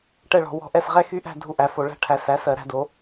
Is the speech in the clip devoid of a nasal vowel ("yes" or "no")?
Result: yes